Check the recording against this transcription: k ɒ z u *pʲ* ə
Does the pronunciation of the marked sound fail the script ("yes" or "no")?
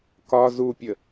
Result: no